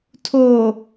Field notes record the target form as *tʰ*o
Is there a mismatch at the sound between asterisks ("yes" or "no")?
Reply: no